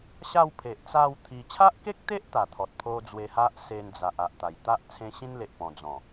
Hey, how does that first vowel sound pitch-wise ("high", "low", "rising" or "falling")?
falling